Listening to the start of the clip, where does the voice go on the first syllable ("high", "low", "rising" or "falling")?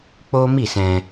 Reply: high